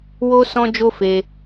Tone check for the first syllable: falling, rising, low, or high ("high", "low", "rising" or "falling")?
high